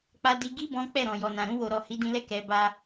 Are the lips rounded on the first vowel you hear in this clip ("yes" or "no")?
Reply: no